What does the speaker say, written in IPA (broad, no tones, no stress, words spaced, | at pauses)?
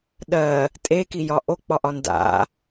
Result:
ɗɜ | tʼekijɒ ʔok͡pɒʔɒ nda̰